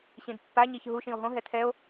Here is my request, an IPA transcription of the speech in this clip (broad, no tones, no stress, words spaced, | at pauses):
ɕĩdpːa ɲiçɦu ʃĩo̯ɦõ ɦɛtʰɛo̯